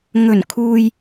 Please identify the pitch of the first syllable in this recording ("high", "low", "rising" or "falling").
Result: low